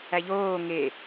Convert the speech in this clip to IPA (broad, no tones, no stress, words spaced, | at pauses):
æʎoː ŋe